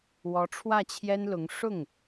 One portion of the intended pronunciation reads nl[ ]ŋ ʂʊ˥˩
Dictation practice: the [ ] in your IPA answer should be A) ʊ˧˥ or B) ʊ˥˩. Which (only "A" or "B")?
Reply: A